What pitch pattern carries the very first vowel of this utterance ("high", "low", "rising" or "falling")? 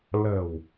low